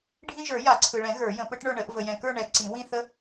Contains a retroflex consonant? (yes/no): yes